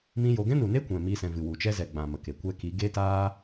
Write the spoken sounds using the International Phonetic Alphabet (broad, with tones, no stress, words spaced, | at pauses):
mĩ˦jo˧ ɡɛ̃˦nu˨ne˦ kʷɛ̃˨mi˧sɛ̃˨ vɨ˨wu˨t͡ʃɛ˦zɛ˨ ɡ͡bã˨ mə˨ke˨ kʷɛ˧ki˨˦ ɡe˦taː˦